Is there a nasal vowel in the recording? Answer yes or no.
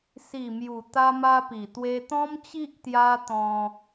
yes